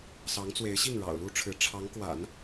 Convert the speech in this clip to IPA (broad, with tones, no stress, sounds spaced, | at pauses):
s ɑ˧˥ ŋ t͡s w e˧˥ ɪ̯ ɕ i˥˩ ŋ ɻ ɑ̰˨˩ ʊ̯ l u˥ ʈ͡ʂʰ ɻ̩˧˥ ʈ͡ʂʰ ɑ˧˥ ŋ k w a̰˨˩˦ n